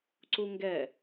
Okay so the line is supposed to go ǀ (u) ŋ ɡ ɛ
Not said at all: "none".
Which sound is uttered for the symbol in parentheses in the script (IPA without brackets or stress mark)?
u